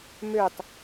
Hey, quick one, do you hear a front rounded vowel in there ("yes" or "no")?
yes